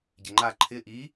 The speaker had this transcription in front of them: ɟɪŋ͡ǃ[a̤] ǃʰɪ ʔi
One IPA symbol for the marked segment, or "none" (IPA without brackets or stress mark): a